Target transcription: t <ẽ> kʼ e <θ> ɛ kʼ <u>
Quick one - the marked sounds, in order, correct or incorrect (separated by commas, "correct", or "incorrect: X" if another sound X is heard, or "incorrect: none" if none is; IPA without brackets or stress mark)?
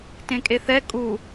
correct, correct, correct